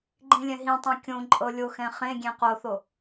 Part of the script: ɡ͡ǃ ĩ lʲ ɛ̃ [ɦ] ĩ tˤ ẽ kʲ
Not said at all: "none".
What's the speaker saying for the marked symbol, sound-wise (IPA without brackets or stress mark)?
ɦ